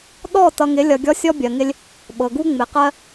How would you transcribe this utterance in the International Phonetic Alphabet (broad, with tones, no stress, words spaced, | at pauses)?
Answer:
ɗɔ˦˨ tʌ˨ŋɪ˨˦lʲʌ˨ ɡʲɔ˦sʲɔ˦bʲɜ˨ŋɪ˦lʲ | ɓɤ˨ɡu˦ ŋ͡mɪ˨qɜ˦